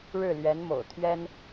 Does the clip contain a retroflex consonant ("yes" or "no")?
yes